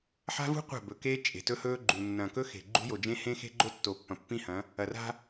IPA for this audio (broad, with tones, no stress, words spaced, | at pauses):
ħa̤˦vṳ˦ qʷa̤˦˨bɵ˨keː˦ t͡ʃʼe̤˨tɵ˦hɵː˦ɡ͡ǃu˨ nːɐ̃˨kɵ˦ xe̤˨ ɡ͡ǃṳ˦jo˨d͡ʒẽ˦ hẽ˦xe̤˦ɡ͡ǃo˦ tːo˨pːɐ̃˨pːĩ˦hɐ̃˨˦ | ɐ˨ra̤˦